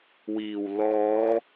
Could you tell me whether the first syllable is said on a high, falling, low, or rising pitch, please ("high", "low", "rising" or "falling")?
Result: low